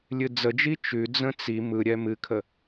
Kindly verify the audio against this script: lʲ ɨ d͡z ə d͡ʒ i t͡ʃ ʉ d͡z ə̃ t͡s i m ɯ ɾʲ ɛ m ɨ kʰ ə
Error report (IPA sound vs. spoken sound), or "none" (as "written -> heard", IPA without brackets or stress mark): none